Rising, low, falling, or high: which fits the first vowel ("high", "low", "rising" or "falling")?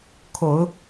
low